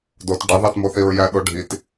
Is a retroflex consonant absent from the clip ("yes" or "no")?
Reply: no